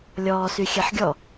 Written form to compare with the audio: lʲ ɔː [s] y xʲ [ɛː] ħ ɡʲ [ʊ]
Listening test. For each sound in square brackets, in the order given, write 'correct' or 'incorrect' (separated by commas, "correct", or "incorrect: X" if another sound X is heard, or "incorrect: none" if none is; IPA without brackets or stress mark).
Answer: correct, incorrect: ɛ, incorrect: ɔ